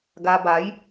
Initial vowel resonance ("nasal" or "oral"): oral